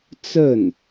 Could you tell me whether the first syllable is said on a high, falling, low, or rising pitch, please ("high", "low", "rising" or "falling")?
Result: falling